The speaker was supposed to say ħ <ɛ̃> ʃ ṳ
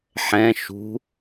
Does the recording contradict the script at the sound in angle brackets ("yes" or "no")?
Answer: no